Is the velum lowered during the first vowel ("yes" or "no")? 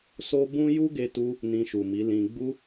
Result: no